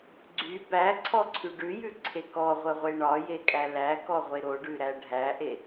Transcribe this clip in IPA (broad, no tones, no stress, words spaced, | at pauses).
ɡ͡ǀy bæǀʰɔǀʰy ɖʉjʉǀʰe kɔʁʷəʁʷe ɳɒjekʼæ lækɔʁʷe ɾoɖʉɾæ ɖʱæʔe